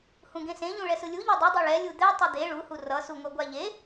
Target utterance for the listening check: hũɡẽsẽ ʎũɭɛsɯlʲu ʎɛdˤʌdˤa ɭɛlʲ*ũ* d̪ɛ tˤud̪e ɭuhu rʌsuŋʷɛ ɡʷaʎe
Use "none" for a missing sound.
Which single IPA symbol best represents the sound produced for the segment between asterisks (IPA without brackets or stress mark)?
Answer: u